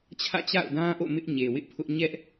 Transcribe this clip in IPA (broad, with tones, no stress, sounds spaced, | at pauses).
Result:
t͡ɕʰ ä̰˦˨ t͡ɕ a̰˦˨ ʊ̯ d ã˦ ʔ o̰˦˨ m ɪ˦ ʔ ɲ e˨ w ɪ˦ ʔ pʰ ʊ˦ ʔ ɲ ɛ˦ ʔ